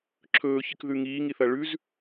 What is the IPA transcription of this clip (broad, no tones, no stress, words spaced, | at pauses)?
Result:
ǁʰɵːçɨkðʉ ŋiːŋiθɐ ɭʉz